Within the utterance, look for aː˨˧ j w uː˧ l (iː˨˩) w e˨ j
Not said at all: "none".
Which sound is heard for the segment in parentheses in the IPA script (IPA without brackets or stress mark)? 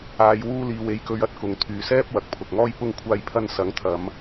iː˨